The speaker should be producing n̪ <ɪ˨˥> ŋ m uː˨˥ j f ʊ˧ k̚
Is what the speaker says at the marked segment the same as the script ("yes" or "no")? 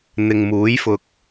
no